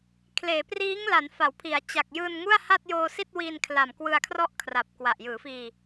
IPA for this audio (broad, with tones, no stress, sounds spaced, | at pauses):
kʰ l eː˩˦ p r iː˦˥ ŋ l a˩˦ n f a˩˦ w pʰ i˩˦ a̯ t͡ɕ a˨˩ k̚ j ɯː˧ n ŋ u˥˩ a̯ h a˥˩ t̚ j oː˧ s i˥˩ t̚ w i˧ n kʰ l a˨˩ m k w ɯ˧ a̯ kʰ r ɔ˥˩ ʔ kʰ r a˨˩ p̚ k w a˨˩ ʔ j ɯː˩˦ f iː˧